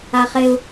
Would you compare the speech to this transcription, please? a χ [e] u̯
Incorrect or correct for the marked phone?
correct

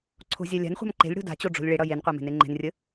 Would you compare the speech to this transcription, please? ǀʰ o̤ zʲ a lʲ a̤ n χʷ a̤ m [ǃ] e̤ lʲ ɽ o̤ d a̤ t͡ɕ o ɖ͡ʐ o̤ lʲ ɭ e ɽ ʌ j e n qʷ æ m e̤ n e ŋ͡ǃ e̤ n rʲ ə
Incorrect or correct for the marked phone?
correct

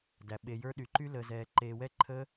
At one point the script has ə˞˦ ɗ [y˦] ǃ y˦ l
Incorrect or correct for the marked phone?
incorrect: y˧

